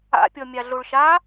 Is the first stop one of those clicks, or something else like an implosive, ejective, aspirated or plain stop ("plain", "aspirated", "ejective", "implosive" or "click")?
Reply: plain